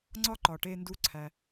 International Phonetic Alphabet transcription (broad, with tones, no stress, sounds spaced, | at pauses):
ŋ͡ǀ ɒ˥ ǃ ɒ˩ ʈ e˧ n d u˧ ǀʰ æ˩